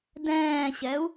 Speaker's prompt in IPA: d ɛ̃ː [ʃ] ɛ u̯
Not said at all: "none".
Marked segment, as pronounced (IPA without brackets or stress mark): ɕ